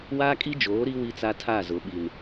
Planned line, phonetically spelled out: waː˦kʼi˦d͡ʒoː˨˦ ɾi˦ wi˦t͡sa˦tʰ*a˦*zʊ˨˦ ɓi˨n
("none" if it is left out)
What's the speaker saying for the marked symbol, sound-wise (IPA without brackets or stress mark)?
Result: a˦˨